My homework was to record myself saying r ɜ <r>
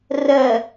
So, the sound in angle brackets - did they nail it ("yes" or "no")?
no